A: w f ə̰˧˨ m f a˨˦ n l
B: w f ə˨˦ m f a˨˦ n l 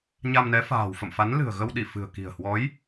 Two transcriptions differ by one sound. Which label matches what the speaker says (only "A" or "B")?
A